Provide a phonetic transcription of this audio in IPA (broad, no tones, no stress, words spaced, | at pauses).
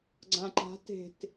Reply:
ɡ͡ǀãǃa̤ te̤t